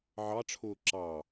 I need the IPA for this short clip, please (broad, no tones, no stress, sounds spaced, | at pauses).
ʕ ɑ ʈ͡ʂʰ ʊː ǁ ɑ